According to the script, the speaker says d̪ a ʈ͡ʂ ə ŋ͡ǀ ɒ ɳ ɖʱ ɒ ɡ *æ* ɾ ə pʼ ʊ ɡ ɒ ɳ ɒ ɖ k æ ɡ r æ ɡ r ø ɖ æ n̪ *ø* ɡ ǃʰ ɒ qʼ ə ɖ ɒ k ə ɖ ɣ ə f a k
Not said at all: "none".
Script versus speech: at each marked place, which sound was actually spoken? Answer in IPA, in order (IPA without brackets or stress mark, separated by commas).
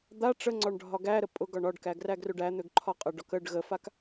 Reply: æ, ø